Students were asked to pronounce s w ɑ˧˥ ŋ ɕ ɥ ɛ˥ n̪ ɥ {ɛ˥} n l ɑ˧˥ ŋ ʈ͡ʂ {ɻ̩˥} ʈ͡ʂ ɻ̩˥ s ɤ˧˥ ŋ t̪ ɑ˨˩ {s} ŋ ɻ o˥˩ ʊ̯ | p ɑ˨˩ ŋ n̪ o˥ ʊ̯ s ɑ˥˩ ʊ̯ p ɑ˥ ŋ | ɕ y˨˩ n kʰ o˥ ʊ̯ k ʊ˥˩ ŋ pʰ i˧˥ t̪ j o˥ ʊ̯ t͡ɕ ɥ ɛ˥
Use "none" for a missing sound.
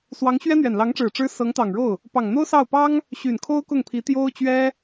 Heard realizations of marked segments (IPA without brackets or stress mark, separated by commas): ɛ˨˩, ɻ̩˨˩, none